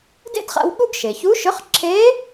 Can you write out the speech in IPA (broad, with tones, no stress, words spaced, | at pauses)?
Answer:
dḛ˥dχa̰˧w ɠu˥ɡ ʃe˩çu˧˥ʃʏ˧˥χ ǁʰe˧˥